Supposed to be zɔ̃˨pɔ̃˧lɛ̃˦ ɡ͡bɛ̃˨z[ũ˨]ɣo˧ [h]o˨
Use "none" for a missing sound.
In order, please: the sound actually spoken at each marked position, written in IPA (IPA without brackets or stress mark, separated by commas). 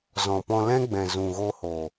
ũ˨, h